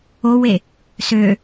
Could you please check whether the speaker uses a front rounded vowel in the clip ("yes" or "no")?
yes